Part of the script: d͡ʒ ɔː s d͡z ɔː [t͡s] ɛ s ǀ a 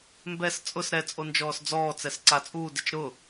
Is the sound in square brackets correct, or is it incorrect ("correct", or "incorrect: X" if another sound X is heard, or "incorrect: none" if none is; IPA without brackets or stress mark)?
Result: correct